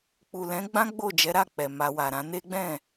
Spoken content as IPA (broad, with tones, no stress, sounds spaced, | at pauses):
k͡p u˨ l ɛ̃˨˦ ɡ͡b ã˦ ɡ͡b o˦˨ d͡ʒ ɛ˨˦ ɾ a˦˨ k͡p ɛ˨ m a˧ w a˨ ɾ ã˨˦ n e˦ ɡ͡b ɛ̃˦˨